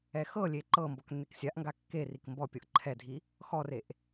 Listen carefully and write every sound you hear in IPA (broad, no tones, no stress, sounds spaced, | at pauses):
ɛ x ɤ lʲ e ǃ ɤ m b ɔ k nː e k sʲ a ʔ ŋ ɡ a kː e r i k m b ɔ pʲ ɤ ʔ ǃʰ ɛ dʱ i | x ɔ r e ʔ